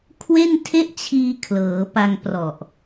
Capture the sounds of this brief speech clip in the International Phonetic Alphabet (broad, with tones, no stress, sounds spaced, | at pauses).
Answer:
kʰ w e˥˩ n tʰ e˥˩ ʔ t͡ɕʰ iː˧ kʰ l ɤː˩˦ p a˧ ŋ p r ɔ˨˩ ʔ